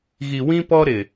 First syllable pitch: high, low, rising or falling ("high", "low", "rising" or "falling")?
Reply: low